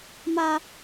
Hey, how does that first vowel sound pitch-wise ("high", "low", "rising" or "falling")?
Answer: high